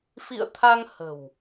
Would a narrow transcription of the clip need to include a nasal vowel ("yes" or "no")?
no